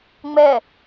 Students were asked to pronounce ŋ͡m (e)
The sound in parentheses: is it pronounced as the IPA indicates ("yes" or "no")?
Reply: no